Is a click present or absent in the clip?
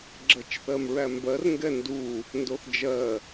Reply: present